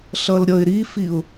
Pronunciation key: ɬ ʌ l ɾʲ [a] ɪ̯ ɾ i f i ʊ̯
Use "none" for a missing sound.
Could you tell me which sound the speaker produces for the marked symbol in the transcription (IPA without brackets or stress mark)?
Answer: ʌ